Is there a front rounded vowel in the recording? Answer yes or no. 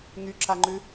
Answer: yes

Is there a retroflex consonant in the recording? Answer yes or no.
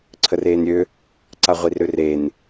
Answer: no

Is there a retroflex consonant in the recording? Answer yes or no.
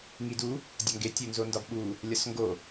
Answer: no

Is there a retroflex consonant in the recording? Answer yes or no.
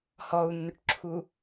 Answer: yes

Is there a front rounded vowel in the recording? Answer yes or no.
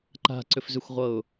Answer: yes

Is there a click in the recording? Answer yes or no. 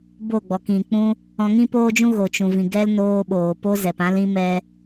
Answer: no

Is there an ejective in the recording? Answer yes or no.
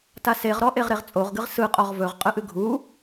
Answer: yes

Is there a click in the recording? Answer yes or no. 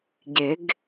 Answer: no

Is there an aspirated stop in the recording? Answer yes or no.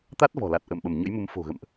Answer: no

